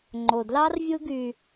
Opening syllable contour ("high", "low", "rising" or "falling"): low